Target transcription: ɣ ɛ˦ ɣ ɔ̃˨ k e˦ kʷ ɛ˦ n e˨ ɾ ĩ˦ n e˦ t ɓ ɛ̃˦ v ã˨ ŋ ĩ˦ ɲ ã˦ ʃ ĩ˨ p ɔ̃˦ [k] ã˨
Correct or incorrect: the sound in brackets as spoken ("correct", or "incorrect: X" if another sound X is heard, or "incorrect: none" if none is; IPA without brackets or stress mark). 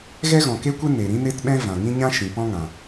incorrect: ŋ